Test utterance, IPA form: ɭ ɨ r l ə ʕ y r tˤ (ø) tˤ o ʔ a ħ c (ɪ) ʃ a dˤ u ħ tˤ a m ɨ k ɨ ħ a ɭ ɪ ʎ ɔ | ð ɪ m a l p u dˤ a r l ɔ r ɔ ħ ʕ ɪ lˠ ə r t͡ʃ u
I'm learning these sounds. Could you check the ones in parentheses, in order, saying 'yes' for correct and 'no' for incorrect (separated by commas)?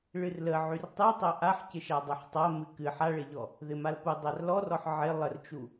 no, yes